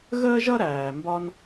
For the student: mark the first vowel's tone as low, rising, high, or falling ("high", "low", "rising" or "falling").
high